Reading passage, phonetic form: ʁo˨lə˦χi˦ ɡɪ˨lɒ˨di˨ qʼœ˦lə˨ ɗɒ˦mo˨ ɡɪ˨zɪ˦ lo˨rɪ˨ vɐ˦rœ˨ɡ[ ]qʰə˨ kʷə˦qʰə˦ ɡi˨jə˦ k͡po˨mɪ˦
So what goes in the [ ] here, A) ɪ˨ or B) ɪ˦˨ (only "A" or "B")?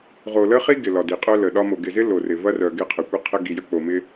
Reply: B